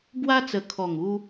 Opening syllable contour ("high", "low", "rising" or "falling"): high